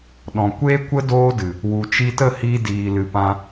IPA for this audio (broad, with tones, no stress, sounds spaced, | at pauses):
ɗ ɔ̃˨ kʷ eː˦ kʷ ə˦ d oː˦ d ɨ˨ | w u˨ t͡ʃ i˧ t ə˦˨ h iː˧ d iː˧ l ɨ˧ p ã˧